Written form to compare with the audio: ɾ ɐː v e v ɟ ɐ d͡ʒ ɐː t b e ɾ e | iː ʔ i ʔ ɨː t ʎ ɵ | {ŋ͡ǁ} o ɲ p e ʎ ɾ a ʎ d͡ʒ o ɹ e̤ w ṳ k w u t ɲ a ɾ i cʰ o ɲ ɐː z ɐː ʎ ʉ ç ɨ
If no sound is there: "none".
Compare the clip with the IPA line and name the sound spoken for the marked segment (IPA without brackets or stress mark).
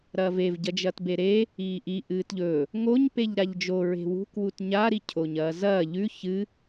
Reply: ŋ